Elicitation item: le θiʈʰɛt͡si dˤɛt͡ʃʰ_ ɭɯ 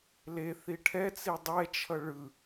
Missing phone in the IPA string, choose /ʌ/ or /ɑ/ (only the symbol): ʌ